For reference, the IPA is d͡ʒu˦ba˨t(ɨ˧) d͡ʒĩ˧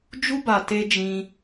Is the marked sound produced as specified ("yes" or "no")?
no